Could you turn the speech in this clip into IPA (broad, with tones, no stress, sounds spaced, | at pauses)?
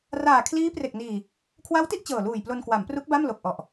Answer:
r aː˨˩ kʰ l iː˦˥ p r e˨˩ k̚ n iː˨˩ | kʰ w a˦˥ w t i˥˩ ʔ t͡ɕ ɤː˨˩ l uː˨˩ j p l o˧ n k w a˩˦ m p r u˦˥ k̚ b a˥˩ m l o˨˩ k̚ ʔ ɔ˨˩ ʔ